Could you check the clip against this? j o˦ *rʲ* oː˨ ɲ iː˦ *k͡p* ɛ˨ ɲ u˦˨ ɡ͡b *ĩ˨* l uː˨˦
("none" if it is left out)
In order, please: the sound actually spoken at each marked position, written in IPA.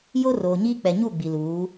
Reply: r, k͡p, i˨

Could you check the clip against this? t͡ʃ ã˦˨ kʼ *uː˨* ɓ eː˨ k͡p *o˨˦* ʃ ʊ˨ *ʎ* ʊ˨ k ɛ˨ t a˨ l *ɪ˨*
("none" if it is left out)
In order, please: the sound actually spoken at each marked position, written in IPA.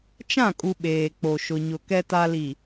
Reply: u˨, o˨, ɲ, i˨

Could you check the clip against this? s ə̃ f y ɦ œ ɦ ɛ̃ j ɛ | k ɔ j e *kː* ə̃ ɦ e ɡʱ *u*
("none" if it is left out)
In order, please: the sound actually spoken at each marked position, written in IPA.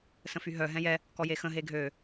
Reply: x, ø

